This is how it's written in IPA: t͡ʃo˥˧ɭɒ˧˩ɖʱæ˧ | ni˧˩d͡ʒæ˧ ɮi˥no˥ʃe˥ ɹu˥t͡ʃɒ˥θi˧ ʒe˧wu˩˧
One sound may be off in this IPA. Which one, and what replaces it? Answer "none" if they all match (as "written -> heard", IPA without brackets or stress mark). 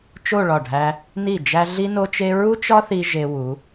ʃ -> t͡ʃ